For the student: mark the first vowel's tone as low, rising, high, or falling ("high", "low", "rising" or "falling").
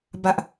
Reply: low